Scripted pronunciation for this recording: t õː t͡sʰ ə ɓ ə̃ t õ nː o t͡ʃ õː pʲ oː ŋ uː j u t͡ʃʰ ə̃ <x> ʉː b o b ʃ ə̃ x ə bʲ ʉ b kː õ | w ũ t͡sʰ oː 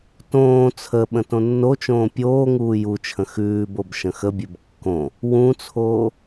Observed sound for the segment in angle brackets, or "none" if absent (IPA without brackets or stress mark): x